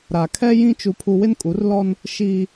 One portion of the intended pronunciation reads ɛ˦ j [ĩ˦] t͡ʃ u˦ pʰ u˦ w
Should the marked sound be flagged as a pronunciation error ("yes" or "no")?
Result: no